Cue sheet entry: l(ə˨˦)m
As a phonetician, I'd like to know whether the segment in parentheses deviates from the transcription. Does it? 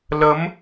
no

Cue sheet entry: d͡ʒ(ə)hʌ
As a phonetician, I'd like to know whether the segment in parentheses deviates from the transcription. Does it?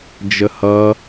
no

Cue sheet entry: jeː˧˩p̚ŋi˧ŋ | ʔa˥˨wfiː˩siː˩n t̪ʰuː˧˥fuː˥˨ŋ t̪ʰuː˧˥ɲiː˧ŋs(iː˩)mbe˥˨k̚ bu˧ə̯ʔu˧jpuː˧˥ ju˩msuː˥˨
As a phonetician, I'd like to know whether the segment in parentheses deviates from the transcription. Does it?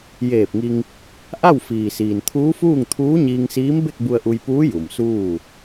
yes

